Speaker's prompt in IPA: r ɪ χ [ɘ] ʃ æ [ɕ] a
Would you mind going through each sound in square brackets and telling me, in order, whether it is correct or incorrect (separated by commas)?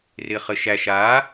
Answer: correct, incorrect